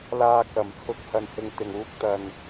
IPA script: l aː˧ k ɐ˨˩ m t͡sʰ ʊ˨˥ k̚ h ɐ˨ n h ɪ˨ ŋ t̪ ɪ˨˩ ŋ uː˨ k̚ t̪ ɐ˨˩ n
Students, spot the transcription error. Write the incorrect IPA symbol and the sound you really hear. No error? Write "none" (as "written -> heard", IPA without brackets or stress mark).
uː˨ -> uː˧